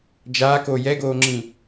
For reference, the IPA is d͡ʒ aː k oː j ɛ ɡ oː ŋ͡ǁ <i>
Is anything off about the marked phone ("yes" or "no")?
yes